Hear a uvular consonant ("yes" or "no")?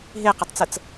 yes